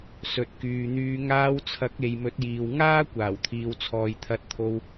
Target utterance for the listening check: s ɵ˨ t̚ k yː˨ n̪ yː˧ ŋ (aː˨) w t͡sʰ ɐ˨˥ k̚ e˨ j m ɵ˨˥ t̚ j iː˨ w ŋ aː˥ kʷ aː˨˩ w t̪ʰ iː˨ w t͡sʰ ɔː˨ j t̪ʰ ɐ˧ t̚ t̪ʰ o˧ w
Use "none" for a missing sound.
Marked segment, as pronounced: aː˧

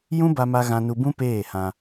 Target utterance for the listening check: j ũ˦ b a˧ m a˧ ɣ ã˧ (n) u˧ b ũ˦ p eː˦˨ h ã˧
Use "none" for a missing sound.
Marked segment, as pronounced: n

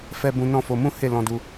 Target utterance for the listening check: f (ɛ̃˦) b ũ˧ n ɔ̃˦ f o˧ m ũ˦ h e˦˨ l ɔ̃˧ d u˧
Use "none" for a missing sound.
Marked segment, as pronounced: ɛ˦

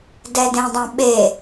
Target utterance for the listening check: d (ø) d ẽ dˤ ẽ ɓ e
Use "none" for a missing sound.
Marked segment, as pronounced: ɛ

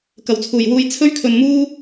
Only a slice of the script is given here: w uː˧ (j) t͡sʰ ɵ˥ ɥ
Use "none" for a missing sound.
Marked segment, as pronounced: j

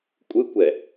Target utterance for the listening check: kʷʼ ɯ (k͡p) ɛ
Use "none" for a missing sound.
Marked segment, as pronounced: kʷ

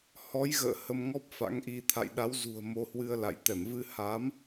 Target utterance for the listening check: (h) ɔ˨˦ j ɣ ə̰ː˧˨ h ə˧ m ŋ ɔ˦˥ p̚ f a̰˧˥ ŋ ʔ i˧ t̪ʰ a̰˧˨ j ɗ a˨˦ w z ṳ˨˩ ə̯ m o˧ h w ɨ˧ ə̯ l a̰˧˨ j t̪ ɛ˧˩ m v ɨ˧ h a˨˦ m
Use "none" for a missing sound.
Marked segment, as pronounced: h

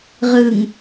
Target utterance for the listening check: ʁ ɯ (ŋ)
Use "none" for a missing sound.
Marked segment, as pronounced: ŋ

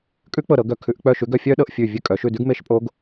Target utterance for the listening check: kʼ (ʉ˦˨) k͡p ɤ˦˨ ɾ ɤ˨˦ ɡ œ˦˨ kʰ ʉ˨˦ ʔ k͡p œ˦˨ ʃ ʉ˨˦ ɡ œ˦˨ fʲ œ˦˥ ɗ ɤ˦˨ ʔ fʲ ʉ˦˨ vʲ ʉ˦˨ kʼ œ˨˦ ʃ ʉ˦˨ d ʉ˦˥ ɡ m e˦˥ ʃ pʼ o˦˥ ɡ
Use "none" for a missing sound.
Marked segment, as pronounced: ʉ˦˥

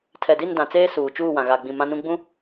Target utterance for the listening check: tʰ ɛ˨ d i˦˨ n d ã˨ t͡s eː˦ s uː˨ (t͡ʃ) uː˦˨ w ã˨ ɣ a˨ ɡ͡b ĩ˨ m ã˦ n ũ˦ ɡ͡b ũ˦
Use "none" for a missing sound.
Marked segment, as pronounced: t͡ʃ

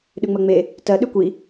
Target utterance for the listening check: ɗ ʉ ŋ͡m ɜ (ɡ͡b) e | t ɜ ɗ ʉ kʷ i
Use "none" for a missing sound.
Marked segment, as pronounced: ŋ͡m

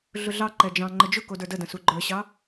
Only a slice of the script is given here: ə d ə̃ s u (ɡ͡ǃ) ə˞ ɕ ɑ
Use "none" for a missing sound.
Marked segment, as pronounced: ɡ͡ǃ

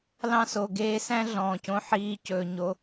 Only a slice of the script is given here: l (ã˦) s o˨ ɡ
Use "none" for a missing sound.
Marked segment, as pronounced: ɑ̃˦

